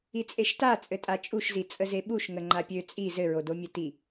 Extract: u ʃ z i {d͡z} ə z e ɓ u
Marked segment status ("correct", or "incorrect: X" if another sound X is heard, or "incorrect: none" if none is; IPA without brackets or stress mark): incorrect: t͡sʼ